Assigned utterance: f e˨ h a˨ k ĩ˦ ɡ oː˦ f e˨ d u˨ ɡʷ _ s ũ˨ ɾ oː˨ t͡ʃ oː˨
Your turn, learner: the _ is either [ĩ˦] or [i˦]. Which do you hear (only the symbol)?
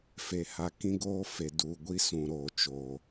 i˦